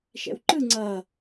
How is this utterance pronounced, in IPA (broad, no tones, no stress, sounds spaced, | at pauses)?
ʃ ɛ̰ w ǃ ɯ ŋ͡ǀ ʌ